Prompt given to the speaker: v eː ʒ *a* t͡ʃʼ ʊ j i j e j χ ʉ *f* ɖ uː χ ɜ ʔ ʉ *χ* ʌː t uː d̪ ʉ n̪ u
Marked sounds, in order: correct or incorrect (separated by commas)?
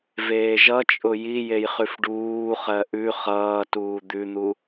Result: incorrect, correct, correct